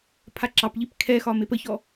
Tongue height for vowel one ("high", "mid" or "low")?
low